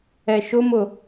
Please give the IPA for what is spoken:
ɛ ʃ ʊ m ʊ

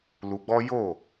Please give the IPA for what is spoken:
l u˧ ɡ͡b ɔ˦ j o˦˨

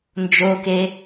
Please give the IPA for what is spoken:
n d͡ʒ o k e

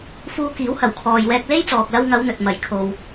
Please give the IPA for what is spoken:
f uː˧ k iː˨˥ w h ɐ˨˩ w kʰ ɔː˨ j w ɛː˧ k̚ l e˥ j t͡s ɔː˨ k̚ l ɐ˧ w ŋ ɐ˨˧ w n̪ ɵ˨ t̚ m ɐ˨˩ j kʰ o˨ w

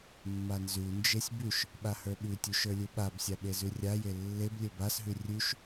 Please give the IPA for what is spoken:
mː a n z ʉ n d͡ʒ e sʲ b ʉ ʃ | ɓ a h ə˞ ɓ ʉ tʲ u ʃ ə˞ lʲ u ɓ a b sʲ a ɓ e z ʉ rʲ a j e lː e b lʲ ɘ b a s ɦ ʉ rʲ ʉ ʃ

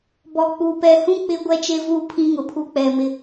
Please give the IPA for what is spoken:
b ɔ˨ k͡p uː˨ p ɛ˨ h ũ˦ k͡p ɪ˦ ɡʷ ɛ˦ t͡ʃ e˦ v uː˦ pʰ ĩ˦ ŋ ʊ˨ pʰ u˦ k͡p ɛ˨ m ɪ˦

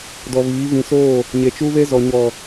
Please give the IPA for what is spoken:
d ɔ˨ β iː˨˦ v ĩ˨ s oː˦˨ | ɲ e˨ t͡ʃ u˦ β e˦ z ɔ˨ ɲ ɔ˨

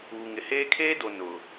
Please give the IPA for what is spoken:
uː˨ ŋ ɪ˨ h eː˦ kʰ eː˦ d o˨ n ʊ˨

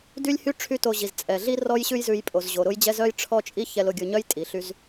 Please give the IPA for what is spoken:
d y˥ lʲ h y˥ ʈ͡ʂʰ y˥ t o˧ ʑ i˩ z t͡sʼ ɛ˩ ɮ i˥ r ɔ˥ j ɕ ʉ˥ j z ʉ˧ j pʼ o˩ z ʑ o˩ ɾ ʊ˥ j d͡ʑ ɛ˥ z œ˥ j ʈ͡ʂʰ ɔ˥ t͡ʃʼ i˥ ç ɛ˧ l ʊ˧ ɡʲ ʊ˧ ɲ œ˥ j tʼ i˩ ɬ y˧ z

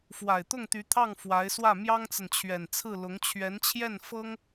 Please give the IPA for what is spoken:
f w a˨˩ ɪ̯ t̪ ʊ˥˩ ŋ t̪ y˧˥ t̪ʰ ɑ˥˩ ŋ f w a˧˥ ɪ̯ s w ä˥˩ m j ɑ˥ ŋ t͡s ə˨ n t͡ɕʰ ɥ ɛ˨˩ n t͡sʰ ɹ̩˥˩ l ʊ˧˥ ŋ t͡ɕʰ ɥ ɛ˧˥ n t͡ɕʰ j ɛ˥˩ n f ɤ˥ ŋ

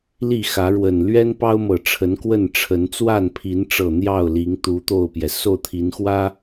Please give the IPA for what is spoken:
l i˥˨ x ä˨˦ ɻ w ə˨˩ n l ɥ ɛ˦ n p ɑ˦ ʊ̯ m ɤ˨˩ ʈ͡ʂʰ ə˨˦ n k w ə˥˨ n ʈ͡ʂʰ ə˨˦ n t͡s w a˥˨ n pʰ i˨˦ n ʈ͡ʂ ɤ˨˩ n̪ j ɑ˥˨ ʊ̯ l i˨˦ ŋ t̪ u˨˦ t̪ o˥˨ ʊ̯ p j ɛ˩ s o˥˨ ʊ̯ t̪ʰ i˨˦ n x w ä˦

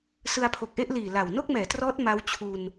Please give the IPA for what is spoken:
s ɯ˧ a̯ pʰ o˨˩ k̚ ʔ e˥˩ ʔ l iː˨˩ l a˨˩ w n o˥˩ k̚ m ɛː˩˦ t r ɔː˦˥ t̚ m a˦˥ w t͡ɕʰ u˧ n

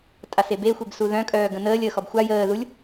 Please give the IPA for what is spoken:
tʼ a s e b e xʷ e b s u ð œ̃ kʼ œː ɡ ə̃ n əː lʲ əː x ɔ b xʷ a j əː ð u lʲ

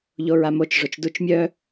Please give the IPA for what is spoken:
ʎ o ɹ a m o t͡ʃ ʐ o t͡ʃ d u t͡ʃ mʲ œ

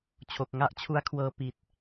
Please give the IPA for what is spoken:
t͡ɕʰ o˨˩ k̚ ŋ a˥˩ ʔ t͡ɕʰ u˦˥ a̯ kʰ w ɤː˧ p i˨˩ t̚

